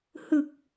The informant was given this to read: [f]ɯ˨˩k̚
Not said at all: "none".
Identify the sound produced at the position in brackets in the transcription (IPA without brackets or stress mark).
h